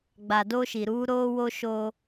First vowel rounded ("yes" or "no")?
no